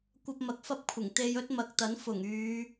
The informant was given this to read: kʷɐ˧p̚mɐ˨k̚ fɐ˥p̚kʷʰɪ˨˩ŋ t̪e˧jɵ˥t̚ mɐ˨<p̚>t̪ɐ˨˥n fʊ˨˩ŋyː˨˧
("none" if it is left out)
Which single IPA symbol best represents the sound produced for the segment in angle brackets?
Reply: k̚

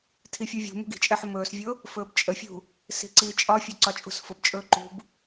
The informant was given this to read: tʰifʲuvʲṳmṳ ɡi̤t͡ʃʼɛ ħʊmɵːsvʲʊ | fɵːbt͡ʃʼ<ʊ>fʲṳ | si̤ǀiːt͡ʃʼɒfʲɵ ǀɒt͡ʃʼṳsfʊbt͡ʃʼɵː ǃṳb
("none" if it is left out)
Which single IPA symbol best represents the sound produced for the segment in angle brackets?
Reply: ə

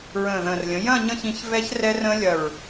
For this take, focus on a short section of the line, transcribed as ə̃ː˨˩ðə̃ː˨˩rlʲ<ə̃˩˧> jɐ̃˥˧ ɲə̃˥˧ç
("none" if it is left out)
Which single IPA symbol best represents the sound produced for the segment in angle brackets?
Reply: ə̃˩˧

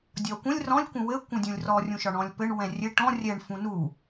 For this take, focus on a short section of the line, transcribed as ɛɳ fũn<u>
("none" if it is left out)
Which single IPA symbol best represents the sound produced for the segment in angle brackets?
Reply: u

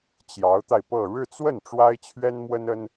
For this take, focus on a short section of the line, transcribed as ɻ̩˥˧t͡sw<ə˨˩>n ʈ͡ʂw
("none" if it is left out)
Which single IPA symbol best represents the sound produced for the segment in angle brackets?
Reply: ə˥˩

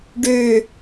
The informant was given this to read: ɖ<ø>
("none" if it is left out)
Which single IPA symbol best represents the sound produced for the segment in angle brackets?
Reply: ø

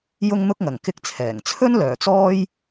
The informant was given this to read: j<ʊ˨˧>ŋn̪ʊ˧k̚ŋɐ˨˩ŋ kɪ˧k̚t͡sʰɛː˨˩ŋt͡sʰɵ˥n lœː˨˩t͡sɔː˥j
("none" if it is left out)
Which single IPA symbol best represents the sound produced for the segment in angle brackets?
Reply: ʊ˧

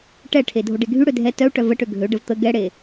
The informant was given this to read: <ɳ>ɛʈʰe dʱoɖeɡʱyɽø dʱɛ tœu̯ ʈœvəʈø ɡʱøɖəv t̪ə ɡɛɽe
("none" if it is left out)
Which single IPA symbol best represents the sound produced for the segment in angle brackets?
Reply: ʈ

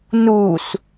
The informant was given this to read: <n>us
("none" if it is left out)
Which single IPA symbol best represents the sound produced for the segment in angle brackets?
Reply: n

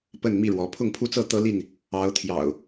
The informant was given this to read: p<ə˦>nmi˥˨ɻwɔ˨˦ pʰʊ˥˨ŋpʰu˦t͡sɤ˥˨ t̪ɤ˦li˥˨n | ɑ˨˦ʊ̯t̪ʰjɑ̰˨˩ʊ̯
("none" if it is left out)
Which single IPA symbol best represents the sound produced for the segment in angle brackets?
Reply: ə˥˨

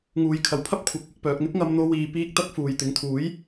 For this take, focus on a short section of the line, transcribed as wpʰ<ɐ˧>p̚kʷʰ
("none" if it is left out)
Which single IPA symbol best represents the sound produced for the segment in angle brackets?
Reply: ɐ˥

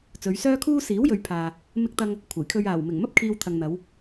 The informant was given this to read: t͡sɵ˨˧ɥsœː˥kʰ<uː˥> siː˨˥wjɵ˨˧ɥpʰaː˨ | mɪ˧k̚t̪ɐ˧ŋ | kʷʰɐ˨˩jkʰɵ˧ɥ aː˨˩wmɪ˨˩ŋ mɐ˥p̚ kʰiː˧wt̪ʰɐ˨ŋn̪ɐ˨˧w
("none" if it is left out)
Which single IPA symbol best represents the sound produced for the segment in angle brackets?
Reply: uː˥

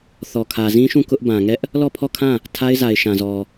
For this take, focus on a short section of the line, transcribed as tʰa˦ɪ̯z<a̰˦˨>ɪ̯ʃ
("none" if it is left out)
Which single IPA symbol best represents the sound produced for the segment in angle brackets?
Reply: a˨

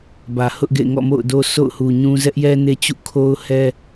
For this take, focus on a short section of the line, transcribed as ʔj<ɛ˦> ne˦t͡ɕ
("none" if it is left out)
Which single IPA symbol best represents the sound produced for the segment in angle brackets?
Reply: ɛ˦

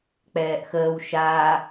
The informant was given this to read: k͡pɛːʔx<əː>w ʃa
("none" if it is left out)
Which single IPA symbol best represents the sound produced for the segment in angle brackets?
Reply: əː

